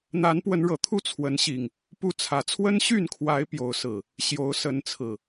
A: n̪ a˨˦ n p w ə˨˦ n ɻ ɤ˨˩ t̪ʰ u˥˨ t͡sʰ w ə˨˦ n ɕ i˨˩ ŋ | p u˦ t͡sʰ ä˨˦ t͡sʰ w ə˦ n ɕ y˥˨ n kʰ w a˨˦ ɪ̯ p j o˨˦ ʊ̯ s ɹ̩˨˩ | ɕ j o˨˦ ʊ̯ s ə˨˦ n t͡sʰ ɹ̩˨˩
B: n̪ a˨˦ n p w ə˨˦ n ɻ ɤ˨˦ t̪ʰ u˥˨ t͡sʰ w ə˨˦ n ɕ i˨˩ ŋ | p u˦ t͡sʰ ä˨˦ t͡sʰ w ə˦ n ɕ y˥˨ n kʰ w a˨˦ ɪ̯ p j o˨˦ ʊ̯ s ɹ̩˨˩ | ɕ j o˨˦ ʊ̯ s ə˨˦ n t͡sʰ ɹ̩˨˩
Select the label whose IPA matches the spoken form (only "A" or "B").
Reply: A